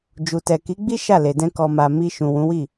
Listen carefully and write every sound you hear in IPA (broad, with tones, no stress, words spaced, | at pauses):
d͡ʒu˨tɛ˨ ki˨˦ɡ͡bi˦ ʃa˦˨le˨dɛ̃˧ kɔ˨ma˨ mi˧ ʃũ˨wũ˨˦wi˦˨